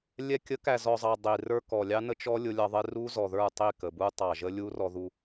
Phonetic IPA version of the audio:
lʲ ɛ˨ kʲ ə˨˦ k æ˨ z ɔ˨ zˤ ɑ˨ dˤ i˨ r ə˞˦ k ɔ˨ lʲ ɑ˦ n ə˦ t͡ʃ ɔ˦ lʲ ʊ˦ lʲ ɑ˦ ðˤ ɪ˦ r u˦ z ɔ˨ ð ə˞˦˨ tˤ i˦˨ k ə˨ b u˦ tˤ ɑ˨ ʒ ə˦ lʲ u˦ r ɔ˨ ð u˨

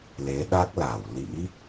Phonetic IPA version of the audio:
l e˨˦ ɗ a˦˥ k̚ l a˧˩ w l ḭ˧˥

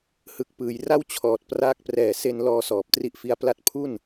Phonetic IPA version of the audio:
h ɯ˨˩ k̚ p ɯː˩˦ j r a˥˩ w t͡ɕʰ ɔː˨˩ t̚ p r aː˦˥ k̚ p r ɛː˨˩ s e˧ n l ɔː˧ s ɔː˨˩ p̚ t r i˥˩ ʔ f i˦˥ a̯ p l a˦˥ t̚ pʰ u˥˩ n

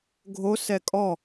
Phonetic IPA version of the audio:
ɡʱ o s ɛ kʼ ɔ

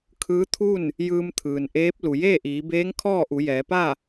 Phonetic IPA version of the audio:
kʰ ɯː˧˥ t̪ʰ u˥˨ n | j ɯː˧ m t̪ʰ ɯː˩ n ʔ eː˧˥ p̚ l u˩ j eː˥˨ ʔ iː˩˧ b eː˧˥ ŋ kʰ ɔː˥˨ ʔ u˩˧ j ɛː˩˧ p a˥˨

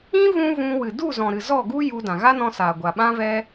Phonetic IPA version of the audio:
ĩ˦ v ũ˦ v ũ˧ w ɨ˨ d u˦˨ z ɔ̃˨ ɾ ɨ˨ z ɔ˦˨ ɡ u˦ j u˧ d ã˨ ɣ a˦ n ɔ̃˧ s aː˨ ɡʷ a˨ ɓ ã˦ v ɛ˦

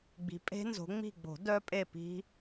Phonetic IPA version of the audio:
ɡ͡b i̤˨˦ pʼ e̤˦˥ n z o̤˨˦ ŋ͡m i̤˦˨ ɡ͡b o̤˨˩˦ d œ˦˥ pʼ e˦˨ p i̤˦˥

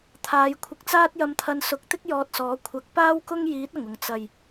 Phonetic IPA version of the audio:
t̪ʰ aː˨˧ j kʷʰ ɪ˧ k̚ t͡s aː˥ t̚ j ɐ˧ m t̪ʰ ɐ˧ n s ʊ˨˥ k̚ t̪ ɪ˥ k̚ j ɔː˧ t̚ s ɔː˨˥ kʷʰ ɐ˨˥ k̚ p aː˥ w k ʊ˥ ŋ j iː˨˥ t̚ ɐ˨˩ ŋ ʊ˨˩ ŋ t͡s ɐ˨˩ j

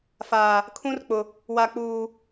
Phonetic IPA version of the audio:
f aː˨ | kʰ ũ˦ r k͡p ʊ˨ | w a˨ k͡p uː˨

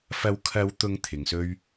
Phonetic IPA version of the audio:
f ɐ˨˧ w kʰ ɐ˨˧ w t̪ ʊ˨˧ ŋ t̪ʰ ɪ˨˧ ŋ s ɵ˥ ɥ

